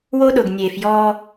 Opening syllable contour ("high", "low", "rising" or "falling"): high